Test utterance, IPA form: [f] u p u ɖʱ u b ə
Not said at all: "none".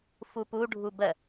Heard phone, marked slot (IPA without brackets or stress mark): f